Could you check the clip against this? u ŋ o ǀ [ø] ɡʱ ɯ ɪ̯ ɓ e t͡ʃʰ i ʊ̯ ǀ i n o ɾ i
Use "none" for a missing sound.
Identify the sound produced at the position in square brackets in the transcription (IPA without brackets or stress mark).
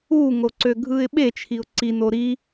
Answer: ø